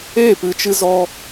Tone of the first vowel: falling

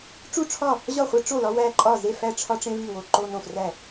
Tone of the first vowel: falling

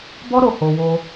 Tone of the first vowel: high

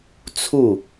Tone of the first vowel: falling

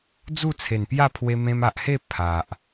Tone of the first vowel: falling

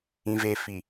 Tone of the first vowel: low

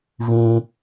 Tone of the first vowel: high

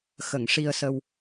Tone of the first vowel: low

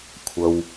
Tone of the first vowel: low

